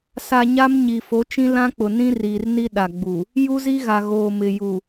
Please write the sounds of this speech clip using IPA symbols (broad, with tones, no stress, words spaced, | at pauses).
sa˨ ɲa˦mɲi˨ fo˨˦t͡ʃĩ˦ lã˦k͡pʊ˨nĩ˦riː˨r ni˦ɗa˨ɡ͡bu˨ | ju˦zi˦ɣa˨ɣoː˨ mɪ˨ ju˨